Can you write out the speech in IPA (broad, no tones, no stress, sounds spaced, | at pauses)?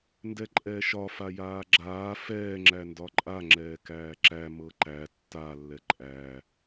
n d ɛ ǃʼ ɛː ʃ ɒ f a j aː ɡ͡ǁ aː f ɛː ŋ͡ǁ æ n d ɒ ǃʼ a ŋ͡ǁ ɛː k æː ǁ æ m ɤ ǃ æ tː a lː ɛ ǃʼ æː